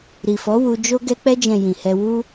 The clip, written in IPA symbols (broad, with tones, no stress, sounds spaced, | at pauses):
ɾ i˨ f ɔ˨˦ w u˧ d͡ʒ o˧ ɡ ɛ˧ k͡p ɛ˧ d͡ʒ ɛ̃˨ j ĩ˨ h ɛ˧ w u˧